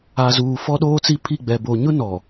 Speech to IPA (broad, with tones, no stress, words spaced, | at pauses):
a˨zuː˨ fɔ˦ɗoː˦t͡si˦ pʰi˦˨ɡ͡bɛ˨ bo˨ɲʊ˦nɔ˨